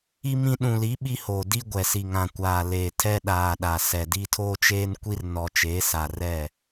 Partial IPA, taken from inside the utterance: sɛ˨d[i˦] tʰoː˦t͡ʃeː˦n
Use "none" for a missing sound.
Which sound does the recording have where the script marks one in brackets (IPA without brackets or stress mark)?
i˦